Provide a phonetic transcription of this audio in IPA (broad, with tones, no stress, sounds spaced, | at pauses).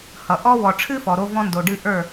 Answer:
h ʌ˨ ʔ ɔ˦ w ɔ˨ ʈ͡ʂʰ ɨ˦ f ɔ˨ ɾ o˦ v ɔ̃˦ n d o˨ ɖ ɨ˦ ʔ ə˞˦˨